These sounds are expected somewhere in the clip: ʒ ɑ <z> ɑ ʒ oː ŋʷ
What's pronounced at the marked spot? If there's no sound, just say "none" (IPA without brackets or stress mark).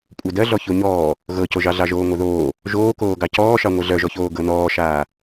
ɮ